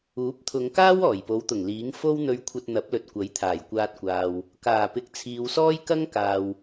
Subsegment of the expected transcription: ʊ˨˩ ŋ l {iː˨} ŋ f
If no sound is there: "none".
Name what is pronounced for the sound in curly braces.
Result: iː˨˥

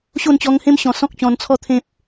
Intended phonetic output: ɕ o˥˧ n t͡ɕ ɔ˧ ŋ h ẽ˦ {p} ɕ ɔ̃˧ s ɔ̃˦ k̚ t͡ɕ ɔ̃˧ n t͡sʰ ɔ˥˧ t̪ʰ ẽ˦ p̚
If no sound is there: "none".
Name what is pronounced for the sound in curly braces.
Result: m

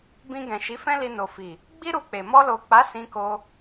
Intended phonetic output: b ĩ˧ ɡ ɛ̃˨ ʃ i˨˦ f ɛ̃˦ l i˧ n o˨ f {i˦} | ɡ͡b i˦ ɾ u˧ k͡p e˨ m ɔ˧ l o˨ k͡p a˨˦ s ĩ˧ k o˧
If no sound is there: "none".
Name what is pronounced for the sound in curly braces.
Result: i˨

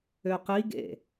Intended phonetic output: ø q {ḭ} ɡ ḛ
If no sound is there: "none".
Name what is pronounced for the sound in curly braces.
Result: i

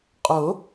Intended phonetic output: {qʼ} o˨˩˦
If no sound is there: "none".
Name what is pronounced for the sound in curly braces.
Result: qʼ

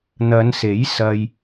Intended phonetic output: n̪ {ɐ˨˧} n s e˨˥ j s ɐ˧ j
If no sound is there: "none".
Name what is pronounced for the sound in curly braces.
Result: ɐ˨˧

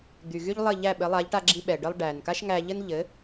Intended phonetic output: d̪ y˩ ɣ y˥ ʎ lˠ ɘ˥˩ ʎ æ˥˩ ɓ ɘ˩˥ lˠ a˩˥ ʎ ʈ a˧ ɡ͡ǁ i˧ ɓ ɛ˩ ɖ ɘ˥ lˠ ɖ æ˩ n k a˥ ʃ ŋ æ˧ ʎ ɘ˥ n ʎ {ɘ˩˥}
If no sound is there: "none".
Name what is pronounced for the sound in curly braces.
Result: ɘ˩˥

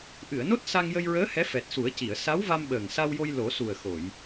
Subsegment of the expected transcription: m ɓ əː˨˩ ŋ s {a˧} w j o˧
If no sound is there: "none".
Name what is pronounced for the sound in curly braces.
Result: a˧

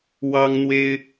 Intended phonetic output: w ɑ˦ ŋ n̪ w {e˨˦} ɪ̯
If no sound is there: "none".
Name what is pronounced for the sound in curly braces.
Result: e˦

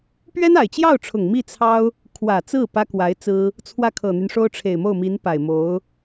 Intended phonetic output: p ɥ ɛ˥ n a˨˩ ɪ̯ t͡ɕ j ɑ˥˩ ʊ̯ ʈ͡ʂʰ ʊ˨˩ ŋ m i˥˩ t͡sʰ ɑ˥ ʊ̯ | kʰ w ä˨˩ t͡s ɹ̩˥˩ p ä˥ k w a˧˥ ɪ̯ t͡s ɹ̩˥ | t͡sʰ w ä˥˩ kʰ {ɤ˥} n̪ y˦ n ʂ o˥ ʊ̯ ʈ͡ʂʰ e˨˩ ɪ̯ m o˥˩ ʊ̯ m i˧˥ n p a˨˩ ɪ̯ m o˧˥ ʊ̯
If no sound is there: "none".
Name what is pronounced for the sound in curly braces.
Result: ɤ˨˩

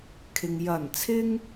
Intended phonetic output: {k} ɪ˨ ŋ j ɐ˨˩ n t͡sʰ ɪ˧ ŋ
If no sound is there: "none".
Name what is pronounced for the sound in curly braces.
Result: kʰ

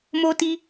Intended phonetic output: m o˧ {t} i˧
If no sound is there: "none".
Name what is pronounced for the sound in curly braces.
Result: t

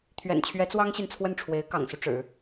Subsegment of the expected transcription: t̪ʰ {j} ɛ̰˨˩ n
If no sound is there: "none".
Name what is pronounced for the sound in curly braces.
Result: ɥ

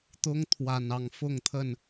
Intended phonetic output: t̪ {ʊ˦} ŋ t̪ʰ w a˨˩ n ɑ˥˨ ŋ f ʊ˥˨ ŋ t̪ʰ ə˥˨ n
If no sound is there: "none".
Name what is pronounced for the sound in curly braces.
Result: ʊ˦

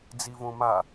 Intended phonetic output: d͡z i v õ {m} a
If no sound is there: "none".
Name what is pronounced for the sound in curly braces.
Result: m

